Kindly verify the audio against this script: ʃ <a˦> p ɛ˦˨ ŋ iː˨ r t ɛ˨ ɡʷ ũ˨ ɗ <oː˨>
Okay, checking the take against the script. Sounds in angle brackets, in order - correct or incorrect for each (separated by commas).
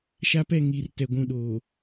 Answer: correct, correct